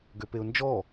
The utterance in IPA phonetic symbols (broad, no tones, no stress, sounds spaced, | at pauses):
ɡ ø p e ʊ̯ n d͡ʒ ɔ